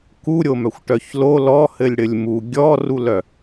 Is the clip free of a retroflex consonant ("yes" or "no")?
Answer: no